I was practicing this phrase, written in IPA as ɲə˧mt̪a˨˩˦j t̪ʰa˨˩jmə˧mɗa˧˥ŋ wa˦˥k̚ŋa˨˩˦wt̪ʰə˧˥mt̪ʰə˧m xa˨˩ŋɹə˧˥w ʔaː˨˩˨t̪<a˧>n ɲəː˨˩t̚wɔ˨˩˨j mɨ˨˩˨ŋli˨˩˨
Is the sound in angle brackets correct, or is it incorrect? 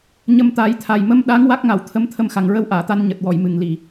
correct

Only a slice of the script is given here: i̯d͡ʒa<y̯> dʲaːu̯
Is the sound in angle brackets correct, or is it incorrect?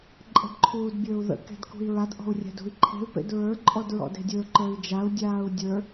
incorrect: u̯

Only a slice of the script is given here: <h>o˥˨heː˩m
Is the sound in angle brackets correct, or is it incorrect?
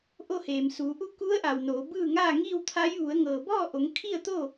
incorrect: ʔ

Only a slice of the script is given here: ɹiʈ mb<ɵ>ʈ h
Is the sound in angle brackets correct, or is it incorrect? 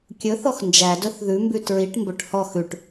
correct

